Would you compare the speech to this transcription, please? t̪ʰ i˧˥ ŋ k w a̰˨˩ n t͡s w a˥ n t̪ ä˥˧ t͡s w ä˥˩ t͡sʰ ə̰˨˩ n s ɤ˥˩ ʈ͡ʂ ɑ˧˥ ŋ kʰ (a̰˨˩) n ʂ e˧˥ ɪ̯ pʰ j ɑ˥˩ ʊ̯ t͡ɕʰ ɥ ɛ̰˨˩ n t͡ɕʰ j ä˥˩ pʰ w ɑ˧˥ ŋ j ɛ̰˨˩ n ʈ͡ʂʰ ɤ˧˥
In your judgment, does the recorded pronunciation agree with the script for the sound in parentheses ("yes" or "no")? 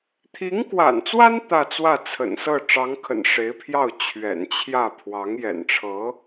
no